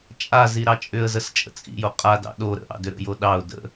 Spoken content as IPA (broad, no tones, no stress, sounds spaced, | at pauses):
t͡ʃʼ a z i ɾ ɑ t͡ʃʼ ʏ ə̯ z ə s t͡ʃʼ ə̰ t͡sʼ ḭ j o qʼ a d ɑ̰ ɗ o ɾ ə̰ ʔ ɑ̰ d ʏ ɾ ə̰ j o ɗ ɑ ʊ̯ d ə̰